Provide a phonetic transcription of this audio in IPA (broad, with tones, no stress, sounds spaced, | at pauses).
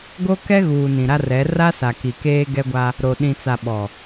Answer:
ɡ o˦ k ɛ˦ ɣ uː˨ n ĩ˨ ɾ a˦ r ɛ˨˦ r a˦ s a˨ k i˨ k eː˦ ɡ ɛ˦ ɡʷ a˦ | ɾ o˨ ɗ ĩ˨ t͡s a˨ ɓ ɔ˨